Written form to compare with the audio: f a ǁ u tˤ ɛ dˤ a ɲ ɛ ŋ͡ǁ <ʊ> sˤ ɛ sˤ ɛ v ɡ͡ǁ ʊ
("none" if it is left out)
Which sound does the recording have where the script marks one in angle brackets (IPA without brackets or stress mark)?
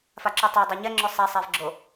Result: ʊ